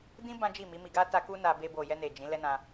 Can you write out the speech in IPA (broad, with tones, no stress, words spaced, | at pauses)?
dĩ˦ bã˦d͡ʒi˦˨mi˨˦ mi˧ɡa˦ ta˦ ku˦na˧ be˧bo˨jɛ˧ne˨ d͡ʒĩ˨˦ lɛ˦nã˧